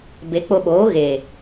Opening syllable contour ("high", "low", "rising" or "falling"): rising